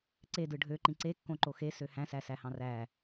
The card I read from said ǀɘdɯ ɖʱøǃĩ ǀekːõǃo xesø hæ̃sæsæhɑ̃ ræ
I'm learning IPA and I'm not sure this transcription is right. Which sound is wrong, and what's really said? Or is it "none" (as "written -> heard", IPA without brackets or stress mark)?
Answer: ɘ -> e